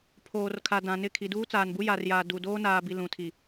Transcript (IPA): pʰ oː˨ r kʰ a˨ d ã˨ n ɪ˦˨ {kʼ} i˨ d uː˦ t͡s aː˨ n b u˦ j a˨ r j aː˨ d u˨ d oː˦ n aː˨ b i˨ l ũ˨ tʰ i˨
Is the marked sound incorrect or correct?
incorrect: kʰ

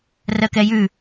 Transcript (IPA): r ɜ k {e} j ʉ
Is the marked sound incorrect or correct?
incorrect: ɛ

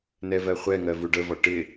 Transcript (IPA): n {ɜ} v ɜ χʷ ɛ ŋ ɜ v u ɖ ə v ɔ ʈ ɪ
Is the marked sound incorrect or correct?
incorrect: ɛ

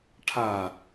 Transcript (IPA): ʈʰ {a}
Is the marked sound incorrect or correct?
correct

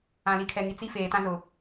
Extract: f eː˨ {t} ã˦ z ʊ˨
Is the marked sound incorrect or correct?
correct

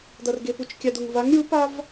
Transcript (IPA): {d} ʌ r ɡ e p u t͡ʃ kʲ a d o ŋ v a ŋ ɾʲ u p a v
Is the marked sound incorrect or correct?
correct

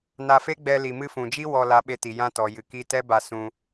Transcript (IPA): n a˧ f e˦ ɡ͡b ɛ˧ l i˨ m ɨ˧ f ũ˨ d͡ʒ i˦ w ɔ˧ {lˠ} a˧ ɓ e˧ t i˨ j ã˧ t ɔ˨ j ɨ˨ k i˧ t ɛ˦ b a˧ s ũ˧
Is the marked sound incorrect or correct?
incorrect: l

